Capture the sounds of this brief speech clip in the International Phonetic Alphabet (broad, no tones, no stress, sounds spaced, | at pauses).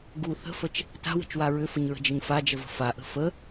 ɡ u θ ə̤ f ə t͡ʃ | t a̤ w ə̤ t͡ʃ w a ɹ ʏ f ə ɲ ɹ ə̤ d͡ʒ ə ɲ f a d͡ʒ ə v ə̤ f a ʔ ə̤ f ə